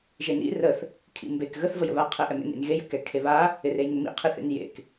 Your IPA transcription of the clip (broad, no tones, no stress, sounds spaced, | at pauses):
ʒ e n ḭ r ə θ | kʰ ḭ m b e k ɣ ə θ v ə j ə̰ β a qʰ e ʔ ɛ m ḛ n ḭ n ɣ e j ə̰ k ɛ kʰ e β a | ɪ r e j ŋ ɪ m ḭ qʰ i θ ḛ n j ḛ k